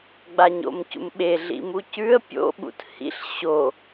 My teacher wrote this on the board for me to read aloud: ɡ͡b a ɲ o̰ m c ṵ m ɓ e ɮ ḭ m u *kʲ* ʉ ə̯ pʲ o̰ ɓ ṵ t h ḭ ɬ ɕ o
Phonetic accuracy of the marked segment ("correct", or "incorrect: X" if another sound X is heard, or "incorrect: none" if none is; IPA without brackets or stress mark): incorrect: c